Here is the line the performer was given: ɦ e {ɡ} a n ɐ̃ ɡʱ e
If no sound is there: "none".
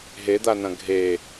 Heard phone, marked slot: d̪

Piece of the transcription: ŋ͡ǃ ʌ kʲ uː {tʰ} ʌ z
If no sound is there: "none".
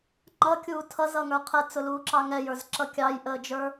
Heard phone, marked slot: tʰ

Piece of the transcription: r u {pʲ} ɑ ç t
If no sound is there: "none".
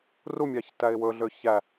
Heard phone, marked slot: mʲ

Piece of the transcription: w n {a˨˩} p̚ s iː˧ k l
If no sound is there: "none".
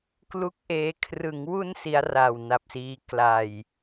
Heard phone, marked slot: a˨˩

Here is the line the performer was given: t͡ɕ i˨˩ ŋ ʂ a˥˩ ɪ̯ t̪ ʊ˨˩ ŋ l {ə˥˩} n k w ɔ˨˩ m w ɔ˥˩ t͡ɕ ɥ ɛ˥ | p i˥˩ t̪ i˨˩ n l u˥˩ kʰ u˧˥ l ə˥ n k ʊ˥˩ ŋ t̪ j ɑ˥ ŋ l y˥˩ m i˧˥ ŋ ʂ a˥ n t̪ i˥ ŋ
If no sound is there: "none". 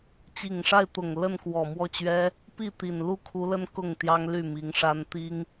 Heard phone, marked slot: ə˥˩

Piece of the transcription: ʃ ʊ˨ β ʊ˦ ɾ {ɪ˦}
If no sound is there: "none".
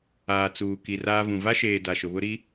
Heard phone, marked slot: i˦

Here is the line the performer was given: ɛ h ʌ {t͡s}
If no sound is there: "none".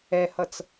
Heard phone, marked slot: t͡s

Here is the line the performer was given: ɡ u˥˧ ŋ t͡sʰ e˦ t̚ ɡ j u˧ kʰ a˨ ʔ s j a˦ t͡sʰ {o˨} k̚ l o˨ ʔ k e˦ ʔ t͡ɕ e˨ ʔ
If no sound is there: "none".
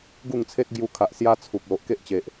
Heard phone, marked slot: u˨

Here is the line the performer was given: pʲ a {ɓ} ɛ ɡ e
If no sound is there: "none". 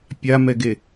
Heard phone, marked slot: m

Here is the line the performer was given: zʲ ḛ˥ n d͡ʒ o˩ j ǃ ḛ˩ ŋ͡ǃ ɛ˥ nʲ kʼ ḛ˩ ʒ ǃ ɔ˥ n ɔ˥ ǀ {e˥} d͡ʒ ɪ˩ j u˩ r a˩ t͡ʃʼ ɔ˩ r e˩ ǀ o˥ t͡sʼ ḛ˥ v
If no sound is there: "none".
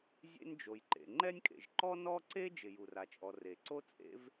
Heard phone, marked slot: e˥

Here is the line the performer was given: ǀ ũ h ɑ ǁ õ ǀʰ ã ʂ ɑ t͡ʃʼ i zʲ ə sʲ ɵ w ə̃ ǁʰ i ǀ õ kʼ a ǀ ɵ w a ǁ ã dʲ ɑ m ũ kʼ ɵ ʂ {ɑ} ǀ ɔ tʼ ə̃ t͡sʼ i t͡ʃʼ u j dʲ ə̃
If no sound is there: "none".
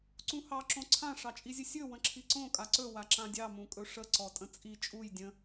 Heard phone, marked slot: ə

